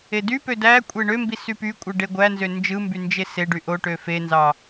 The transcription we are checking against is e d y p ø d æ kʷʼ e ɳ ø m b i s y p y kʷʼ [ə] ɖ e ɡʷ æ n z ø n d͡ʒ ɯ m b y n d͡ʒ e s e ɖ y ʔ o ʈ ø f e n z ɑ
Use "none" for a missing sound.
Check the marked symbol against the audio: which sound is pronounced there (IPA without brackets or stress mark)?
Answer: ɯ